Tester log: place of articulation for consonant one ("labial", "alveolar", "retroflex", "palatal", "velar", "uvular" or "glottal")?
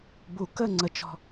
labial